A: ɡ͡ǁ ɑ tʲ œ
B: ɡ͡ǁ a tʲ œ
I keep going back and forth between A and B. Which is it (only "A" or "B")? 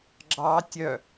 A